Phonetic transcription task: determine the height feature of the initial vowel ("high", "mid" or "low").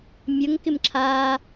mid